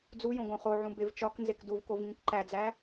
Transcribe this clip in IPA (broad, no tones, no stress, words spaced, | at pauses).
d͡zujõ ɡõχoʕũ bevt͡ʃɒknzek duvkov ŋĩkǃæd͡zæ